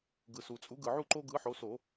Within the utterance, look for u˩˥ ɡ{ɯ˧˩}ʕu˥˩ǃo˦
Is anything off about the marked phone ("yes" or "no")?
yes